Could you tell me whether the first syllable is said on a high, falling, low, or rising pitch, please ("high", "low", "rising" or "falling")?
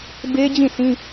high